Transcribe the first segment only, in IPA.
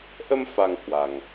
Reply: ʔ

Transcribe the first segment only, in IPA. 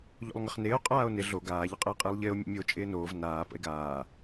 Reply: ʎ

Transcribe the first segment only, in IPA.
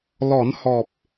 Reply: l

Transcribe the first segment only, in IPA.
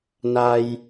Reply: n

